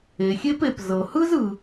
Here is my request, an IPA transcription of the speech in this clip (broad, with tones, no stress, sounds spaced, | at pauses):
e˩ xʲ e˥ p e˩ p z ɤ˩ h ɯ˥ z ɯ˩